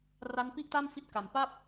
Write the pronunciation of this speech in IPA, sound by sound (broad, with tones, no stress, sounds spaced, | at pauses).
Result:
r a˦˥ n p i˥˩ ʔ t a˥˩ m f i˦˥ t̚ k a˨˩ m p a˥˩ p̚